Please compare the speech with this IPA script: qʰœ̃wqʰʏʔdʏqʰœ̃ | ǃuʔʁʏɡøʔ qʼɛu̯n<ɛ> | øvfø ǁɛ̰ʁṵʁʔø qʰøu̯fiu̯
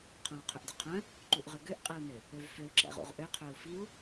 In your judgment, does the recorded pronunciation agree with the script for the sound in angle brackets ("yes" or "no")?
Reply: no